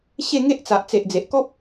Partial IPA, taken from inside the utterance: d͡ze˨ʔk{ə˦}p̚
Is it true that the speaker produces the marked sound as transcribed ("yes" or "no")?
no